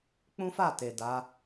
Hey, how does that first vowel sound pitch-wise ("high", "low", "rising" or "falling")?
high